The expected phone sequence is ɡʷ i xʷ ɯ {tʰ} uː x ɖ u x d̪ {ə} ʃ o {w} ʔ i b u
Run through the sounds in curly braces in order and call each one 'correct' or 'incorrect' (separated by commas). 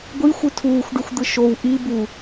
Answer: correct, incorrect, correct